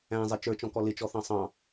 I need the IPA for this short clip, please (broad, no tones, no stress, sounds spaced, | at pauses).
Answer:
æ̃ zˤ ɪ t͡ʃ ə˞ t͡ʃ ɔ̃ k ɔ l ɪ t͡ʃ ɔ θ ɑ̃ sˤ ɑ̃